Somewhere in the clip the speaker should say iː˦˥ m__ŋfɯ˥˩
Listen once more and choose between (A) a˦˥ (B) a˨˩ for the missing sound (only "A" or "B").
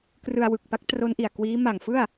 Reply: B